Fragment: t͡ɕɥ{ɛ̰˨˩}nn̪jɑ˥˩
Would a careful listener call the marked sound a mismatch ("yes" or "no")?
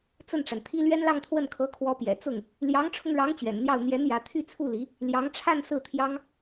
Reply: no